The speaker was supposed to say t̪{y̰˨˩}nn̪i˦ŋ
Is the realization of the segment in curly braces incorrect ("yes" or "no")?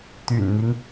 no